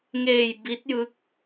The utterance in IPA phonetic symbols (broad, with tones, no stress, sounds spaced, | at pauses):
ŋ eː˧ j b i˦˥ t̚ j ɯ˦˥ k̚